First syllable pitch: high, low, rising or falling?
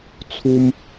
high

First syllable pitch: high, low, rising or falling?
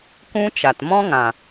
high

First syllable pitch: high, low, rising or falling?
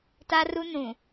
high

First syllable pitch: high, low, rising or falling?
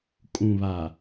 low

